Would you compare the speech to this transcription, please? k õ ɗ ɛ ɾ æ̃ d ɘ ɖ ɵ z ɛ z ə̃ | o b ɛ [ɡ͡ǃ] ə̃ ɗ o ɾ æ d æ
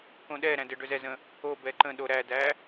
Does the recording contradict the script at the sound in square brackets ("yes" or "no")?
yes